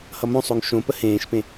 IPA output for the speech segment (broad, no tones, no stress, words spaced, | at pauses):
hʌmõsˤoŋ ʃõpə hẽːʃpẽ